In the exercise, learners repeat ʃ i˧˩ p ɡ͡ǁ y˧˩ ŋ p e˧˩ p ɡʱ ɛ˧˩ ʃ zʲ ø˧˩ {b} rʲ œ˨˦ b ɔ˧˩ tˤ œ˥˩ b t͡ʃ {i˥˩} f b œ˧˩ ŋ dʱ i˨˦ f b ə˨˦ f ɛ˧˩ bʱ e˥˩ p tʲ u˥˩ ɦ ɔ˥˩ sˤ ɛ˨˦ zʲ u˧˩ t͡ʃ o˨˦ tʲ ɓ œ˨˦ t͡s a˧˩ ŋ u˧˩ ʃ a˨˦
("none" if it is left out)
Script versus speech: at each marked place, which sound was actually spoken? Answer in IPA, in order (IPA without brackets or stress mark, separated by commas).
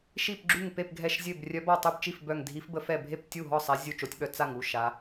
b, i˥˩